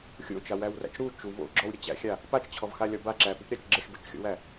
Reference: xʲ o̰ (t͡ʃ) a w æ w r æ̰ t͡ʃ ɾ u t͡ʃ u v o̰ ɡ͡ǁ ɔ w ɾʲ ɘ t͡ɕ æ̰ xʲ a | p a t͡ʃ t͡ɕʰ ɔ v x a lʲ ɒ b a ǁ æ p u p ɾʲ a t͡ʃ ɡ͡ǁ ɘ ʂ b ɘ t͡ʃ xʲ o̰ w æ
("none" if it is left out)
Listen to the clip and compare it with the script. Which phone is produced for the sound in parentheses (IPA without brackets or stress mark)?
t͡ʃ